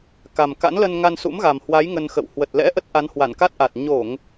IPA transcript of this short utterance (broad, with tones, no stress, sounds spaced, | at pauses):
k a˨˩ m k a̰˧˥ n l ə˧ n ŋ a˧ n s ṵ˧˥ m ɣ a˨˩ m h w a˨˦ j ŋ ə˧ n x ə̰˧˨ w h w ə˨˩ t̚ l ɛ̰˧˥ ʔ ə˦˥ t̚ ʔ a˨˦ n h w a˧˩ n k a˦˥ t̚ ʔ a˨˩ t̚ ɲ o˧˩˨ ŋ